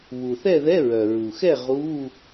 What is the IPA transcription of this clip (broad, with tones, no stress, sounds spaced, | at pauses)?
β u˩ θ ɛ˥˨ ð ɛ˧˥˧ ɹ œ˩ ɹ u˩ x ɛ˥˨ ʁ u˧˥˧